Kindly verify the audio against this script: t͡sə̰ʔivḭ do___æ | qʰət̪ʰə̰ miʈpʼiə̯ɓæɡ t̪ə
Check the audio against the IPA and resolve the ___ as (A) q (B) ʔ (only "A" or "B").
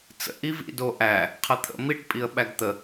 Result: B